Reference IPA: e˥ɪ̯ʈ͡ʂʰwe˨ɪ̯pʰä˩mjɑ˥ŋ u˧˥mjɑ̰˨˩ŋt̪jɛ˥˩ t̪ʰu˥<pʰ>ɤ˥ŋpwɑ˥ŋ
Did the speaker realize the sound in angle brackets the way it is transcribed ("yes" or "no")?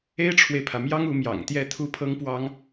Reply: yes